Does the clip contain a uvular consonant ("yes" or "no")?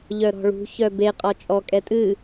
yes